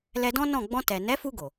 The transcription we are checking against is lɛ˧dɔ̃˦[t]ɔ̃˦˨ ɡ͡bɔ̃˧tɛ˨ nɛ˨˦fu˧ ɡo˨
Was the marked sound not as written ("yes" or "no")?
yes